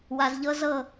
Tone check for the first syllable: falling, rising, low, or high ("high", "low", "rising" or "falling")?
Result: low